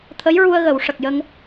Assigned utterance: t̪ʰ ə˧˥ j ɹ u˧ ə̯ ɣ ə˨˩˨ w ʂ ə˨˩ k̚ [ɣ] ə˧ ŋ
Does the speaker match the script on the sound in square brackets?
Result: no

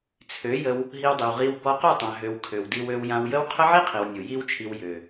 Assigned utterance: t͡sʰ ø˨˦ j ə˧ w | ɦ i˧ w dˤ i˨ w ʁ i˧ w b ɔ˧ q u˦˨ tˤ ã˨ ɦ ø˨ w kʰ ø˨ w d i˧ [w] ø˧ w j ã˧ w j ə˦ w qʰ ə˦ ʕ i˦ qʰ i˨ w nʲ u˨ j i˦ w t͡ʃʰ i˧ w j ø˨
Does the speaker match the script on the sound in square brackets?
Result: yes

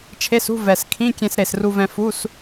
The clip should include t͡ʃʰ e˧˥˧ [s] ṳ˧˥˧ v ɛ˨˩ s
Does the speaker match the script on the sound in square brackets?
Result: yes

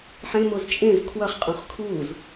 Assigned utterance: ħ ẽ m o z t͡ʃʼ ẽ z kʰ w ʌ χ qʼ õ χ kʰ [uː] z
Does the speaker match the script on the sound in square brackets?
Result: yes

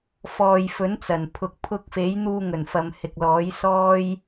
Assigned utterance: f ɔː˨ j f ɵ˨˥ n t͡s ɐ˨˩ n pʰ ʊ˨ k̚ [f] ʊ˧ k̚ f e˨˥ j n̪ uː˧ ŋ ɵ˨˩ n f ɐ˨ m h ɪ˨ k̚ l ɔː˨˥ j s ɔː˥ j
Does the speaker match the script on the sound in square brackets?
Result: no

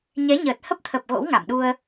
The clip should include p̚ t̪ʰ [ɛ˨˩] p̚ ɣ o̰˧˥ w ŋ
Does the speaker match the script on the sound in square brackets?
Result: no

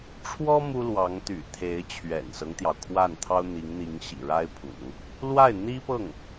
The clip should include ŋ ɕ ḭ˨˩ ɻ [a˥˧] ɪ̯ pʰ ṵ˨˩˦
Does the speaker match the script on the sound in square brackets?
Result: no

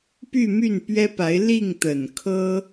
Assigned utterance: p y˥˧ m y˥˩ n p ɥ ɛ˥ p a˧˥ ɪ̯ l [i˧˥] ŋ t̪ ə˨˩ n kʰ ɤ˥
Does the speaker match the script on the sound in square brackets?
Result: no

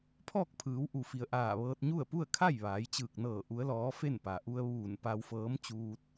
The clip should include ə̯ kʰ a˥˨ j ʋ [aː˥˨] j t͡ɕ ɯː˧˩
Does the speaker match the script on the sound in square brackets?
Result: no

